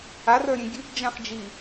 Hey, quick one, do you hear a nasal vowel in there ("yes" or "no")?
yes